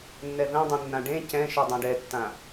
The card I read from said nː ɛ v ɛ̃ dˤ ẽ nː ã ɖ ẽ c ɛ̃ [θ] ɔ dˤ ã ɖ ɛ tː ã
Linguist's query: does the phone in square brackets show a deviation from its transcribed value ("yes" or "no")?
yes